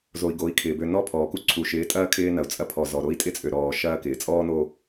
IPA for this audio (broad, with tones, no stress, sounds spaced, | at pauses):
z o˨ i̯ ɡ o˨˦ i̯ kʰ ɪː˨ b ø˨ n ɔ˦˨ pʰ ɔː˨ k u˦ ǀʰ u˨ ʃ ɪː˨˦ tʼ ɐː˦ kʰ ɪː˦ n ɐ˨ u̯ t͡sʼ ɐ˦ pʰ ɔ˨ z ɔ˨ ɾ o˦ i̯ tʼ ɪ˦ t͡sʼ ø˨ ɾ ɔː˨ ʃ ɐː˦ k ɪː˨ t͡sʼ ɔː˦ n o˦